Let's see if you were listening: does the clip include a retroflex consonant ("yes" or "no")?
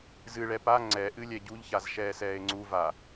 yes